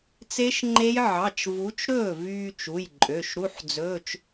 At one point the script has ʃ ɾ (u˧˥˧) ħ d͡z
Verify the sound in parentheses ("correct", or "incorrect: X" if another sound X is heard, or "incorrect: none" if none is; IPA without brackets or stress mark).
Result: correct